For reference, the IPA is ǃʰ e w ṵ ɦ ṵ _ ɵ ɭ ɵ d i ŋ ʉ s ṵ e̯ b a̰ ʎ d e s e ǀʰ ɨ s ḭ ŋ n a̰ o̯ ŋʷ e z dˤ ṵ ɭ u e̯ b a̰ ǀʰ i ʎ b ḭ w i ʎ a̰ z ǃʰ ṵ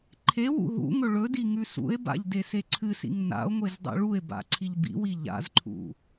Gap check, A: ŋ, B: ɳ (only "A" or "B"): A